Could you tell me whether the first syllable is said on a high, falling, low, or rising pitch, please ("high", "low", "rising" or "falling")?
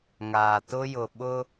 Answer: low